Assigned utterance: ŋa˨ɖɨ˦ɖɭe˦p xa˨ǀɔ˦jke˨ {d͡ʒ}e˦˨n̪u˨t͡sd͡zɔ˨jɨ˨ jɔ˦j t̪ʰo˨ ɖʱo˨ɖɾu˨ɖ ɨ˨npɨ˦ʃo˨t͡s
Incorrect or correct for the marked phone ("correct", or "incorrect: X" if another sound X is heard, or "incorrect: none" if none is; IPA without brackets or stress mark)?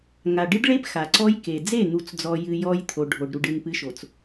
incorrect: d͡z